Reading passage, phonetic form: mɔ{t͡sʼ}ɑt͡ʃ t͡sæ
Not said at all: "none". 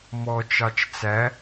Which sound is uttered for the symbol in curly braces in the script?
t͡ʃ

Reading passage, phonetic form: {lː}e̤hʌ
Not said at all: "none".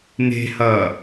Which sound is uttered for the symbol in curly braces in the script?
n̪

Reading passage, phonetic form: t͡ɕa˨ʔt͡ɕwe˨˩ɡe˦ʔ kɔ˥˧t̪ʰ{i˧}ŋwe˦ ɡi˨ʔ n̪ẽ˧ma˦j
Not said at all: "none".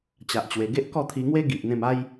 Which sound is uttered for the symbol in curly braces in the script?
i˧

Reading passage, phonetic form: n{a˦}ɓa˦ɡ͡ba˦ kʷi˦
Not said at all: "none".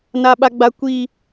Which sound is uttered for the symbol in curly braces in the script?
a˦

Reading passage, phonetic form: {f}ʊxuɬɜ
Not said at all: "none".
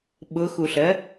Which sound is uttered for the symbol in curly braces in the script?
ɓ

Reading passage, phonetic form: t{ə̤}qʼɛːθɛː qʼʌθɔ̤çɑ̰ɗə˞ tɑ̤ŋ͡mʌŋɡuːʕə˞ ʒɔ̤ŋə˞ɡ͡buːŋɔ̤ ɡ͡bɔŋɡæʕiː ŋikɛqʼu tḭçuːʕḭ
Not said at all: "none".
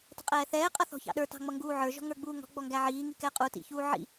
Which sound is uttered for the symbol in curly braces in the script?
ə̤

